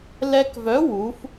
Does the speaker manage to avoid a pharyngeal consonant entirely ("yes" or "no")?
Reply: yes